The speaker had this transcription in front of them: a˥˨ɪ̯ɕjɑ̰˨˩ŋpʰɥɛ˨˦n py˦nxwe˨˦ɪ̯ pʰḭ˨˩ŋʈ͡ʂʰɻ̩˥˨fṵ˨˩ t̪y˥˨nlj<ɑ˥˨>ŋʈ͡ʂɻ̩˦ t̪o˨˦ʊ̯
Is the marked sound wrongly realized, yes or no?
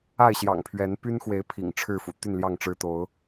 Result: no